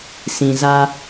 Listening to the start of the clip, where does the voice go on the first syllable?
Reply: low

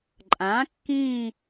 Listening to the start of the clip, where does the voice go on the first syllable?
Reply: rising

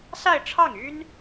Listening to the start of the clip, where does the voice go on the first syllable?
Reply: falling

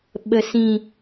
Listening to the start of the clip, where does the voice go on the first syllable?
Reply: low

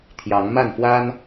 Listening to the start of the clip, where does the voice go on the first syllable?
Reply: rising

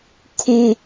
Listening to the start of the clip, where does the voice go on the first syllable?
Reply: high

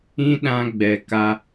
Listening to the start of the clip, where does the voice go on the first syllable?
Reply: high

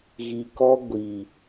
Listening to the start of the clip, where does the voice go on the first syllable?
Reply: low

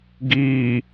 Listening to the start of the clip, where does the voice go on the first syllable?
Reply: low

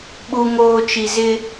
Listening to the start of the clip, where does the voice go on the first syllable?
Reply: low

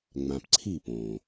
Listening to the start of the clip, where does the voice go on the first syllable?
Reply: low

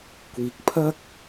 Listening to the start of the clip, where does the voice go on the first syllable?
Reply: low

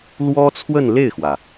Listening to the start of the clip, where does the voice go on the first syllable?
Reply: high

